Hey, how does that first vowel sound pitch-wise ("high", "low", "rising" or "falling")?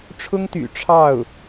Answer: high